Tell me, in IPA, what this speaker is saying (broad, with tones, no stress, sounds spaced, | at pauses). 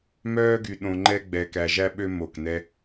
m œː˦ ɡ y˧ ɗ õ˧ ŋ͡ǃ ɛ˦ ɡ͡b ɛ˧ k æ˧ ʒ æ˦ ɓ ø˦ m o˦˨ k n ɛ˦